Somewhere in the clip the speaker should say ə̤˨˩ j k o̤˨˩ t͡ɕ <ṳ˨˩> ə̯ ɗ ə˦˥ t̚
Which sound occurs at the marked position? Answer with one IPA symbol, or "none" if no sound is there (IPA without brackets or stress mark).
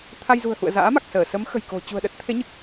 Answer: ṳ˨˩